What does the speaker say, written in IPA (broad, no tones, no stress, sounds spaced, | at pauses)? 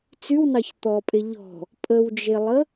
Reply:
t͡s y w n ɑ ç t̪ ɔ pʼ e ʎ ɔ̤ | pʼ ə w d͡ʒ e lˠ ə